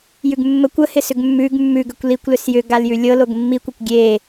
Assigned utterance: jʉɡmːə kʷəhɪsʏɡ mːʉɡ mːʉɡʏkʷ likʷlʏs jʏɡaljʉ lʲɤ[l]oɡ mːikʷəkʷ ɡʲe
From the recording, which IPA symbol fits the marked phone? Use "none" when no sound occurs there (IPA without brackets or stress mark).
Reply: l